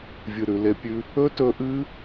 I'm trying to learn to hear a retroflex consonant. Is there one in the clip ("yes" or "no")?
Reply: no